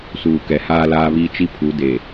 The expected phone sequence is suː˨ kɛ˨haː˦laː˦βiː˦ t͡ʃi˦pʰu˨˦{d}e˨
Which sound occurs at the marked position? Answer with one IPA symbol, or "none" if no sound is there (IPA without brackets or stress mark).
d